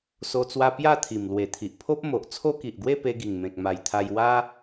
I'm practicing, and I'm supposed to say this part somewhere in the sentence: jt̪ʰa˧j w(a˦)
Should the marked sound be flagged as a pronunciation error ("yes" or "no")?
no